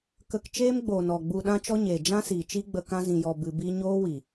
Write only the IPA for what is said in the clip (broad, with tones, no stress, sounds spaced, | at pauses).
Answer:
k ə˧ k t͡ʃ eː˦ m ɡ͡b oː˨ n ɔ˨ ɡ͡b u˧ ɗ ã˦ t͡ʃ ɔ˦ ɲ eː˨ d͡ʒ ã˦ s iː˨ t͡ʃ i˦ ɡ͡b ə˧ k ã˦ z ĩ˧ j ɔ˧ b ɨ˧ b i˦ ɲ oː˦ w i˨